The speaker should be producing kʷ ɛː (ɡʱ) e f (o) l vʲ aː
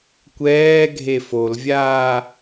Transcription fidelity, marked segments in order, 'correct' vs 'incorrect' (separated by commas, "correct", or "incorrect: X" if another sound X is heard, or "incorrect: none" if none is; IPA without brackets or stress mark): correct, correct